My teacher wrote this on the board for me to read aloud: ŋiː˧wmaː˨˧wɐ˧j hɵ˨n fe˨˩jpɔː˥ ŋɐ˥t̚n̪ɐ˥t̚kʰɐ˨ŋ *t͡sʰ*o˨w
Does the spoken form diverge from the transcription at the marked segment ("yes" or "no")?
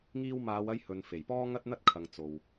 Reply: yes